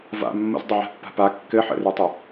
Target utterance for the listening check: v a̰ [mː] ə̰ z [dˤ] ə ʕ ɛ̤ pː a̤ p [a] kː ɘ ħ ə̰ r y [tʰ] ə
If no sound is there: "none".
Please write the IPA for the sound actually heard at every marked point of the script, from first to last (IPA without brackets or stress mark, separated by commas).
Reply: mː, dˤ, a, tˤ